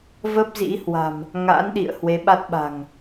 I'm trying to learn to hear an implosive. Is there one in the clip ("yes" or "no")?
yes